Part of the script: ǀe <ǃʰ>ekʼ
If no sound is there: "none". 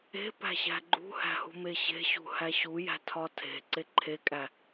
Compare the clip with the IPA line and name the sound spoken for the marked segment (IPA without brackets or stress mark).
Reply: ǃʰ